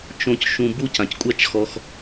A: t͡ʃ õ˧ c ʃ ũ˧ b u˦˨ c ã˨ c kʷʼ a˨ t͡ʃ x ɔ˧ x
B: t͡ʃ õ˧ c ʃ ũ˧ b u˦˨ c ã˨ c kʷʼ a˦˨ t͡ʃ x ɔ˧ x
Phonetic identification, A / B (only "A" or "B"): B